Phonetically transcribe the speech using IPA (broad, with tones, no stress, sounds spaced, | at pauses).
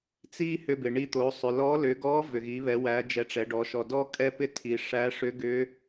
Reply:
t͡s i˥ h ʏ˧ b ɪ˩ ɳ i˧ t̪ o˩˧ sˤ ʏ˩ l ɔ˧˥ l ʏ˩˧ ɡ ɔ˧˥ v ʏ˩ ɣ i˩˧ β ɛ˩˧ w æ˩˧ d͡ʒ ɛ˩˧ ʈ͡ʂ ɛ˩˧ ɖ ɔ˩˧ ʃ ɔ˩ d ɔ˥ kʼ ɛ˥ p ɪ˥ tʰ i˩ ʂ æ˧˥ ʂ ʏ˧˥ ɡ ʏ˧˥